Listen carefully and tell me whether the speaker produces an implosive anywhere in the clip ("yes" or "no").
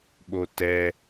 yes